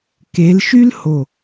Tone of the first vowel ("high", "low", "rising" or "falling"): rising